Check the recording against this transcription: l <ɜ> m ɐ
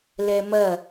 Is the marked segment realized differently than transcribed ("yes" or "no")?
yes